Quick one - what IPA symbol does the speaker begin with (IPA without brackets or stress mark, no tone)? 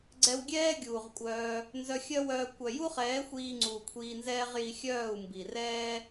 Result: ɡ͡ǀ